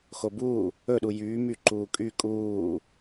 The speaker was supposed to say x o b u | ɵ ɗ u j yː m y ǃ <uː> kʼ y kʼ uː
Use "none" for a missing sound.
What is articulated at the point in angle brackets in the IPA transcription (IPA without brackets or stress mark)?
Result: uː